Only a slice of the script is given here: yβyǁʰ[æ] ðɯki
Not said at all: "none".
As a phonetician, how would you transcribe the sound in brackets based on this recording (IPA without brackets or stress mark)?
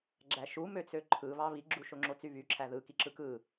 æ